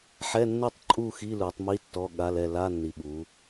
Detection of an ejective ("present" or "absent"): present